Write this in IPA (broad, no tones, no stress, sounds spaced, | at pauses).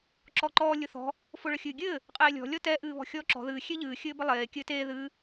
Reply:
ǁ ɔ ǃ ɔː lʲ ʊ θ ɔ̤ | f ʊ ɭ ə xʲ ɨː ɡʲ ɘː | qʼ eː lʲ ɔ̤ lʲ ɔ t ɛ ʔ ɨː β ɔ̤ xʲ ɔː ǁ ɔ̤ ð ɨː xʲ e ʎ ɨː xʲ ɘː b ə lˠ eː kʲ ɘː t eː ð ɨː